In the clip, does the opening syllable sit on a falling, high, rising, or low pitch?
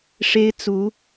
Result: high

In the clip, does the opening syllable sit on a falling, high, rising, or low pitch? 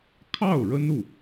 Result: falling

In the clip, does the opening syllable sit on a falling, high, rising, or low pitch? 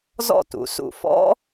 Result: falling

